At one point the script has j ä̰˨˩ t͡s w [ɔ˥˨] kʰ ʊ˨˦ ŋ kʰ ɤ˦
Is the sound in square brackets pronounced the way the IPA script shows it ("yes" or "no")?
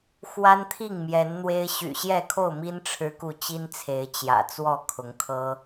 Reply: yes